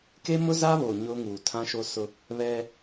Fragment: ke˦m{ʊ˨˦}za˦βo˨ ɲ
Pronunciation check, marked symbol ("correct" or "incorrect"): incorrect